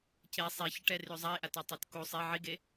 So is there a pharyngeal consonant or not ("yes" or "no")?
yes